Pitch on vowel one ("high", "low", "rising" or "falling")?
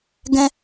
high